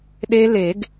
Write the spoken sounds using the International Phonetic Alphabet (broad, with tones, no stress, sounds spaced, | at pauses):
ɗ e˦˥ l e˨˩˦ ɡ